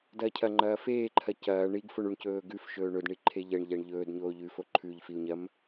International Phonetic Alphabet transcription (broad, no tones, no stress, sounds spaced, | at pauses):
d ɐː cʰ ɐ ŋ͡ǃ ɐː f eː ǃʰ ɐ c ɐː ɳ i ɡ f o ɳ u ɳ c ɵː ɡ ʉ f ʃ ɵː ɳ ɵ d ɳ i ǃʰ e ʎ ɐ ɳ ʎ a ɳ ʎ ɵː d ɲ oː ʎ ʉ f o ǃʰ ʉ ʎ f i u̯ ɲ ɐ m